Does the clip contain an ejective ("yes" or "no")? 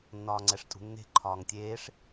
yes